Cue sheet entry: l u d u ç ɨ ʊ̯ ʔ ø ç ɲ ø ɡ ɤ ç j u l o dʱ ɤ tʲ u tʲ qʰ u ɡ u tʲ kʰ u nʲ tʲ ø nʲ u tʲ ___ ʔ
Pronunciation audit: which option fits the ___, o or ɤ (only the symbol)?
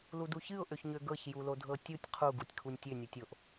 o